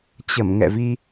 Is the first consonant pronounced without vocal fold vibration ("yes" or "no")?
yes